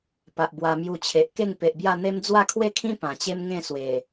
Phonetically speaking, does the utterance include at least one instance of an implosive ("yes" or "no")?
no